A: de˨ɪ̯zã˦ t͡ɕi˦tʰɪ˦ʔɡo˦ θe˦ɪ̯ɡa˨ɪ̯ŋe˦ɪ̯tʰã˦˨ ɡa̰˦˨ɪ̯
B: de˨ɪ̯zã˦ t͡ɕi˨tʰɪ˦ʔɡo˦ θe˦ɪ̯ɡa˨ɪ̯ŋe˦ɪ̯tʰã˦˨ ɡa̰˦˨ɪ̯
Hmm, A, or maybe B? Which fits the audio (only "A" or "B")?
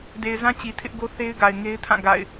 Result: B